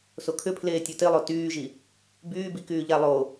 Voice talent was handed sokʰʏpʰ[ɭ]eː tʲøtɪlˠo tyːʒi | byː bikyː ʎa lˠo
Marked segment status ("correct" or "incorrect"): incorrect